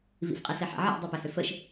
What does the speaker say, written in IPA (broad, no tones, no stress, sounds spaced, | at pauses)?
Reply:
v ḭ f qʼ e s ɛ ħ a̰ ʕ ḭ dˤ i p e h ø f ə ʃ